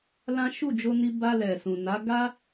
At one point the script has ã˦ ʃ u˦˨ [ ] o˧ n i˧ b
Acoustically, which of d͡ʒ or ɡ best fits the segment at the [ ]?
d͡ʒ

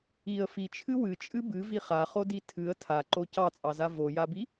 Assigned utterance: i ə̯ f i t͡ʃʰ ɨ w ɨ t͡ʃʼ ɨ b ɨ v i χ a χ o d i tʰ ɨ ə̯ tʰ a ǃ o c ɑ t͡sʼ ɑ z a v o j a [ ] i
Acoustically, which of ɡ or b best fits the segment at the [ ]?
b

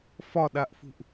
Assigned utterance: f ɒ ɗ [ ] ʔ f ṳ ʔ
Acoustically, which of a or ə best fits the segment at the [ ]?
a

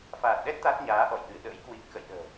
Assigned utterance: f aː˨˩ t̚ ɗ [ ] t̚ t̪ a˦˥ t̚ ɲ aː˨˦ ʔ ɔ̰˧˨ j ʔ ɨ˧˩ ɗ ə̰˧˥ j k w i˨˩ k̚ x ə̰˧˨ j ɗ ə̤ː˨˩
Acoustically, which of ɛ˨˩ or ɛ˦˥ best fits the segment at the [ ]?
ɛ˦˥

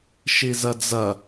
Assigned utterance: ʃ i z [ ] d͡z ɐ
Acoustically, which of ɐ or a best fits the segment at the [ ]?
ɐ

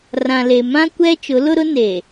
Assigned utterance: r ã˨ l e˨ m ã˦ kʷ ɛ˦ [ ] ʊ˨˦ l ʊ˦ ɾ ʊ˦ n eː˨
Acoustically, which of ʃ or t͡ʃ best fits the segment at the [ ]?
t͡ʃ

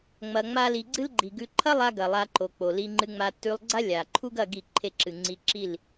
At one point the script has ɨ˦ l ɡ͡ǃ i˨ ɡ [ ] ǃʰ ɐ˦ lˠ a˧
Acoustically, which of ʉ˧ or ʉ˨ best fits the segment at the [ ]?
ʉ˧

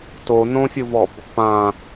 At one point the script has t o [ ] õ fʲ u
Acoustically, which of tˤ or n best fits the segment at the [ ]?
n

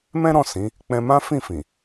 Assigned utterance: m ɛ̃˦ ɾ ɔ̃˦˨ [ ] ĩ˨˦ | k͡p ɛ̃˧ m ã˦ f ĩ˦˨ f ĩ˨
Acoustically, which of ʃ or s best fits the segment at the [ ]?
s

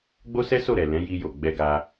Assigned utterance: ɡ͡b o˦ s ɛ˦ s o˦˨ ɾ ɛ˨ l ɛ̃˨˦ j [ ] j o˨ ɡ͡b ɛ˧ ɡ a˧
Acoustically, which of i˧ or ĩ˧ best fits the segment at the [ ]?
i˧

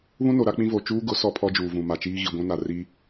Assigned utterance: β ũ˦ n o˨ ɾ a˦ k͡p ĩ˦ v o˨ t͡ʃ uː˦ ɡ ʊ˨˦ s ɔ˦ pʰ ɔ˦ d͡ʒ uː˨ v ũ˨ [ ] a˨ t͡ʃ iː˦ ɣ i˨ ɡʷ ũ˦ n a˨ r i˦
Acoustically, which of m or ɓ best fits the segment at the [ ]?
m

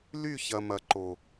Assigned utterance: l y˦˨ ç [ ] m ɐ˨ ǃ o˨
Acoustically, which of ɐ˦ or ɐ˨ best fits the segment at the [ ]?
ɐ˨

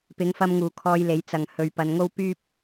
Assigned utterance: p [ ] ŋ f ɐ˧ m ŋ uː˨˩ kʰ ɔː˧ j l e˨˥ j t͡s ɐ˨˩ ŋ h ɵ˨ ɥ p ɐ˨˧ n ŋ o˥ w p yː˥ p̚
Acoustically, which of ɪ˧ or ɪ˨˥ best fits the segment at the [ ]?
ɪ˨˥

